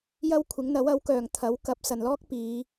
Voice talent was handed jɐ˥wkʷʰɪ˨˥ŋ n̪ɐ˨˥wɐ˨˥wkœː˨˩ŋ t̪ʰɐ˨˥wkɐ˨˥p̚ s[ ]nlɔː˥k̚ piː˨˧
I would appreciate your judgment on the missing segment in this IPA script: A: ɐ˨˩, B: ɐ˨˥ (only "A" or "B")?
A